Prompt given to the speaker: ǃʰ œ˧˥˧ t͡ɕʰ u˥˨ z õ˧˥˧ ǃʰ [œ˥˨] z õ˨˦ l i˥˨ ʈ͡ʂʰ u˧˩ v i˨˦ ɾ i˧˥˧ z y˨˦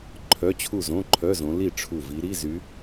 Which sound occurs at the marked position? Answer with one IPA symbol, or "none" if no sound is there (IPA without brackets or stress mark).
œ˧˥˧